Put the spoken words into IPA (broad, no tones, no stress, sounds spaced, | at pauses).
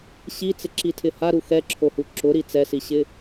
ɕ i t͡s ɪ ǁ i tʰ ɪ h a ɾ u x ɛ ǁʰ o h u ǁ ʊ ɾ i t͡s ɛ s i ɕ ɪ